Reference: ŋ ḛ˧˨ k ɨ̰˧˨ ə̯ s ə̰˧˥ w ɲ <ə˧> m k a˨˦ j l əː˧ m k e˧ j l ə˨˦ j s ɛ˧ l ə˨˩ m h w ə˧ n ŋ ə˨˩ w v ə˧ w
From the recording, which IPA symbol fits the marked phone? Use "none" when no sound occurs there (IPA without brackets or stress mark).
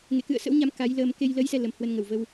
a˧